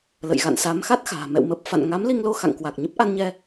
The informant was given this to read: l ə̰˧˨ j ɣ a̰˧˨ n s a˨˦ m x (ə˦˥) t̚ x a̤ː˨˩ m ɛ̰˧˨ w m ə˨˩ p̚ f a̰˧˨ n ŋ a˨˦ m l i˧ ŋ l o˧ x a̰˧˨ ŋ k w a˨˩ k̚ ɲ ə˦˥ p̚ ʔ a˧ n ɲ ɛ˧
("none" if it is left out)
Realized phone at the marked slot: a˦˥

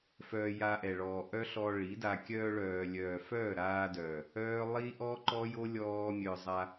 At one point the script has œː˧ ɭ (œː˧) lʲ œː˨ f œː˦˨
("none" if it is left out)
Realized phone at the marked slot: œː˨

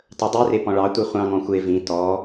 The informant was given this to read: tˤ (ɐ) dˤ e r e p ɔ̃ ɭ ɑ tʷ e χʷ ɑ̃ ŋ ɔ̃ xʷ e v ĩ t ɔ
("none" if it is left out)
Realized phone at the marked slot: ə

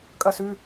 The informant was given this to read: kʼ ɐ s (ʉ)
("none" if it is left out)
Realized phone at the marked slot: ʉ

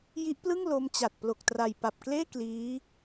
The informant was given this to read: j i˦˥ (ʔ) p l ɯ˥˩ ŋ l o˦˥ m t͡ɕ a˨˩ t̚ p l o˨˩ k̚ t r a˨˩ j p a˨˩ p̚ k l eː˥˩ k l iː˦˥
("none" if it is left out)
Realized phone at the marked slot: ʔ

